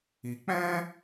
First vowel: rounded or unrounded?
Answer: unrounded